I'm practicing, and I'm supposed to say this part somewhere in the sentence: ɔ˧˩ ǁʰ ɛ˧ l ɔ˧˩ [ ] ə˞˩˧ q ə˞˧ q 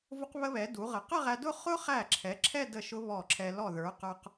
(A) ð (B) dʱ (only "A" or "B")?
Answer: A